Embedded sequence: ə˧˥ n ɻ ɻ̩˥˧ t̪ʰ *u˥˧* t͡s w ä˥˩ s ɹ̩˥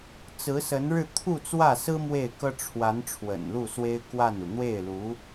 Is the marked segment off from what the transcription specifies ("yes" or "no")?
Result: no